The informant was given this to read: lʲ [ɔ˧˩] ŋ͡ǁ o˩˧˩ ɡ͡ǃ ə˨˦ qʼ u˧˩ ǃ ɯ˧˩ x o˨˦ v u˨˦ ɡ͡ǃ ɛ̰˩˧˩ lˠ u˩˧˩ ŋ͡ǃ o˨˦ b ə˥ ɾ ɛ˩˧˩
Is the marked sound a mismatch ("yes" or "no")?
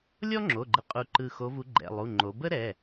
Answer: yes